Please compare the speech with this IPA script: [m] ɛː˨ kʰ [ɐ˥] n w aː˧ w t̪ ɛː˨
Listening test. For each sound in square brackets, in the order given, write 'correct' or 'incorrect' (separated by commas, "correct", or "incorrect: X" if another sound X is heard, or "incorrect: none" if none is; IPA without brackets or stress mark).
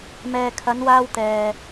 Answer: correct, incorrect: ɐ˨˧